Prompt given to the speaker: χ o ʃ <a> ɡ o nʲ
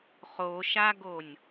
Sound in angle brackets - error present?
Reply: no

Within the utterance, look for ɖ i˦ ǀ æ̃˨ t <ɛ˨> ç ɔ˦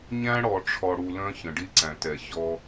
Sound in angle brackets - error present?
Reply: no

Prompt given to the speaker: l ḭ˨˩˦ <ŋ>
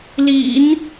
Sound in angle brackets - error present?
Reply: yes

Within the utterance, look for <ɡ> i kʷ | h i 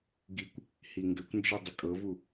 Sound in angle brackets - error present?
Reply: no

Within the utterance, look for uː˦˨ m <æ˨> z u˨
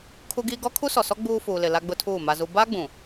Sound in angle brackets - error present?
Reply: yes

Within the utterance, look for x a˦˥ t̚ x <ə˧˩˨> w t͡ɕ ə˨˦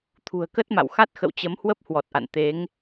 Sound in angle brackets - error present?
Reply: yes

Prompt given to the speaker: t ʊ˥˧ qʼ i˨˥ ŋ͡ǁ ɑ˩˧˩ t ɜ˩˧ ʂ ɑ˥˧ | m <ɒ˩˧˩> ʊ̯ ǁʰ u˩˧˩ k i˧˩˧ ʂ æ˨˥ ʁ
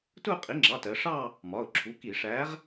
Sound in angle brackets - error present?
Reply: no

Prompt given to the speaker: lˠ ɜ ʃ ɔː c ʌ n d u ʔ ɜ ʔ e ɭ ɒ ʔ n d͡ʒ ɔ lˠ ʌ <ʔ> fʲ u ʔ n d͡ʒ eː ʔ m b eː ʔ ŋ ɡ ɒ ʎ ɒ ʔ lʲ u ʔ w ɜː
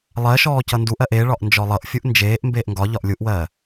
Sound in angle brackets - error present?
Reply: no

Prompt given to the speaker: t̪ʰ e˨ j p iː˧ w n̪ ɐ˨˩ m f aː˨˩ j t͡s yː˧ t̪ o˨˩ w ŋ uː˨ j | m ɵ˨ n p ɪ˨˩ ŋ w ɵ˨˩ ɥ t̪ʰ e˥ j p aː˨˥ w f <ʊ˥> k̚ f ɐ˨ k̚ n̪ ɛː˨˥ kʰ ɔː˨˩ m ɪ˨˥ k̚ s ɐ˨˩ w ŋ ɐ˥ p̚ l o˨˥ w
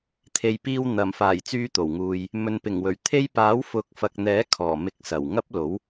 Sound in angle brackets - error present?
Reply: yes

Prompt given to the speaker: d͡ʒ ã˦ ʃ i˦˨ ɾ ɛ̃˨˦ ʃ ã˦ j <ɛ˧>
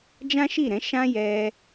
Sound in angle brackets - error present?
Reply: no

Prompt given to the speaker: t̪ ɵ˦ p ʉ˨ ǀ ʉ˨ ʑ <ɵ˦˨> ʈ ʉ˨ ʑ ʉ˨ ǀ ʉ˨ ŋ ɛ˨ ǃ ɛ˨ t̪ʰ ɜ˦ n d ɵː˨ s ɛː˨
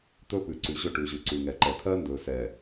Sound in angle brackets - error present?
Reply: no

